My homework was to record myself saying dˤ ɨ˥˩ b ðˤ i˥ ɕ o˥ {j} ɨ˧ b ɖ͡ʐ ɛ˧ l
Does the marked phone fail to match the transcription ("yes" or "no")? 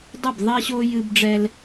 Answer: no